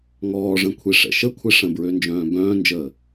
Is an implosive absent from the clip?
yes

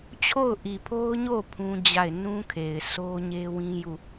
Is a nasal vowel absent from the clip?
no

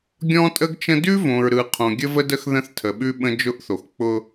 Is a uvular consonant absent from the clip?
no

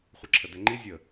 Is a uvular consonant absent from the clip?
no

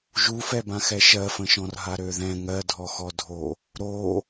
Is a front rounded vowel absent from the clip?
no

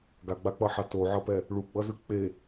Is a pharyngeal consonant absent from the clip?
no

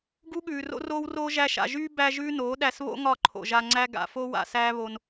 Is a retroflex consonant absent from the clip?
yes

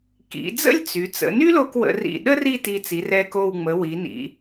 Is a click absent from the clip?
yes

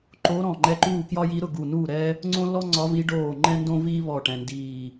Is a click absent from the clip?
no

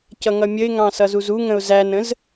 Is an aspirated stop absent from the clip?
yes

